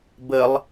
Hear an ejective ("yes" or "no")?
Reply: no